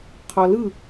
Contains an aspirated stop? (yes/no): yes